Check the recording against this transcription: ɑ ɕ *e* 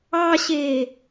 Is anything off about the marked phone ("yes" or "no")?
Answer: no